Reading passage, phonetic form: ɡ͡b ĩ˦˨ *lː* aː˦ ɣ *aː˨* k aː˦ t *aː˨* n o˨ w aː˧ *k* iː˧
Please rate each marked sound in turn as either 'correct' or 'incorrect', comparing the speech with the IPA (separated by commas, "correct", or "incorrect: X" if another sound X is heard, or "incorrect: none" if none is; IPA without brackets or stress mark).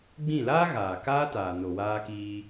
incorrect: l, correct, correct, correct